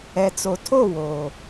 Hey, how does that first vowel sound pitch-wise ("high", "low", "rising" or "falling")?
low